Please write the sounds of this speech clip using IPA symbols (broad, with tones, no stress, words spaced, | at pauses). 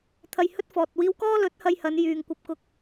t̪ʰɐ˧jhɵ˥t̚fɔː˨t̚wiː˥w kɔː˥lɵ˨˥t̚hɐ˧j hɐ˨˧n jyː˨ŋkʷɐ˧p̚ kʊ˧k̚